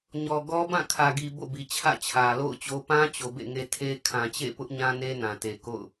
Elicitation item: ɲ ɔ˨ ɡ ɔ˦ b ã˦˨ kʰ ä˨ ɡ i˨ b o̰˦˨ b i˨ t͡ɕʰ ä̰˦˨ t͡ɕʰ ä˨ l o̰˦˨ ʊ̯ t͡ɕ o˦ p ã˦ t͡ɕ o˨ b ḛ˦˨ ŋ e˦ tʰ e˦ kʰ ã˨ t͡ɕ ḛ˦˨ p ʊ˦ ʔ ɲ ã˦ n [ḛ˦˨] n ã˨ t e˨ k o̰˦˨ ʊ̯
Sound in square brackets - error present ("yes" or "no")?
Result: yes